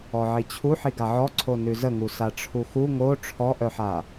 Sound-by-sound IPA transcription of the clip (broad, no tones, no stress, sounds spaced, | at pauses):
ɔ ʕ i t͡ɕʰ u ħ i ɡ a ʕ ɔ ǀʰ o n ʉ z ə ŋ u s a ʈ͡ʂʰ u x u ŋ o ʈ͡ʂʰ ɔ ʔ œ ħ a